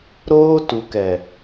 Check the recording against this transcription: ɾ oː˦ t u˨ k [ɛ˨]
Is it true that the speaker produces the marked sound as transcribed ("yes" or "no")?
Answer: yes